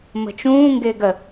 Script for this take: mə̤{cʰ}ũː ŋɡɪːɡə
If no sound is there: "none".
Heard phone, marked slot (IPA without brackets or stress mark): t͡ʃ